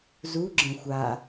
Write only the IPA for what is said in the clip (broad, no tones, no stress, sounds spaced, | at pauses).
z u ɡ͡ǁ ə̃ xʷ a